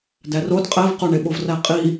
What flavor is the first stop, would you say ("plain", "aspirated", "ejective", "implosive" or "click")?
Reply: plain